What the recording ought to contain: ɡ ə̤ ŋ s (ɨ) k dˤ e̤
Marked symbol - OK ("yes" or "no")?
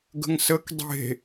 no